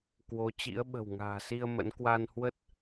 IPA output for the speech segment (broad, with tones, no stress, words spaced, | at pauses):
kwo˨˦ t͡ɕḭ˧˥ə̯ɓə̤˨˩w ŋa̤ː˨˩si˧ə̯ mə̰˧˥n kwa˧nhwə˦˥t̚